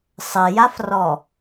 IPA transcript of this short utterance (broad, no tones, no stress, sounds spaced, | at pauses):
sˤ ɘ j a f r ɔ